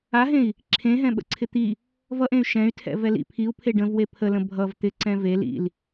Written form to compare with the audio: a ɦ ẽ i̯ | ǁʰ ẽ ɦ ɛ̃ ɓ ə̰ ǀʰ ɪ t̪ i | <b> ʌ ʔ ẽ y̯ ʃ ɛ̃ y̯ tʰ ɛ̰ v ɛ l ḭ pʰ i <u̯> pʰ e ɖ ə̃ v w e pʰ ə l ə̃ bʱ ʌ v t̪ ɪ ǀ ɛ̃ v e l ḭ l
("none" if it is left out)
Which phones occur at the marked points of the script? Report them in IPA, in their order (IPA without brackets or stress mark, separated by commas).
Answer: v, u̯